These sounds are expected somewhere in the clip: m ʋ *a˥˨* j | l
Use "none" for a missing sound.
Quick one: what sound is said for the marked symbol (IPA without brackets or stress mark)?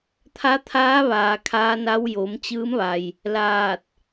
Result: a˩